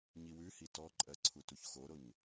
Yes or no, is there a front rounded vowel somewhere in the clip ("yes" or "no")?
no